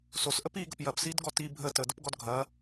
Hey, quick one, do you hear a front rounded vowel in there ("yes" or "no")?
no